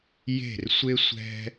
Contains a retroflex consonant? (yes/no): no